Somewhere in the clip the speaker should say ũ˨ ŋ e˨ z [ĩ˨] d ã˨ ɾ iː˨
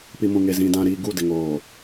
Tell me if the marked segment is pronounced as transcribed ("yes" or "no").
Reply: yes